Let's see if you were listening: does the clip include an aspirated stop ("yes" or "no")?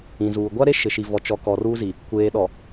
no